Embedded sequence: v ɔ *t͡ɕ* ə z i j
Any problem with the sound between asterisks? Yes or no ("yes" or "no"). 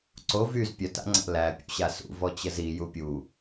no